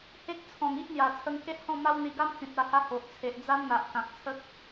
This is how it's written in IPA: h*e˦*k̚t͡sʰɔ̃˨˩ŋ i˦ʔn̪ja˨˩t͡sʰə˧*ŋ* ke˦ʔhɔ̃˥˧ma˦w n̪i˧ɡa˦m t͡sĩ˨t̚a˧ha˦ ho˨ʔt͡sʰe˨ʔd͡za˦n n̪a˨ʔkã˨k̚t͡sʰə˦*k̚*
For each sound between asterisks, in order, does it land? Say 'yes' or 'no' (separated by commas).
yes, yes, yes